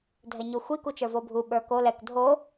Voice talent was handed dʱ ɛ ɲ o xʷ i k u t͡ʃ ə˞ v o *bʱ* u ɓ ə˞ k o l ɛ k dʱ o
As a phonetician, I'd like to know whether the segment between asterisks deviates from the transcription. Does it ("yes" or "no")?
no